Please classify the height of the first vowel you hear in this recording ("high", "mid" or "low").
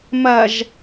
low